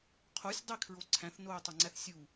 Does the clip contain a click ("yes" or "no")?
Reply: yes